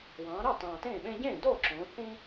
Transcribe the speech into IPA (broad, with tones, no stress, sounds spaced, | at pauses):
w ɑ̃ː˩˧ ɾ ɑ˥˩ t ɑ̃ː˨˩ t ẽː˥˩ ɓ ẽ˦ ɟ ẽː˥˩ d oː˥˩ ǁ õː˩˧ θ ĩ˦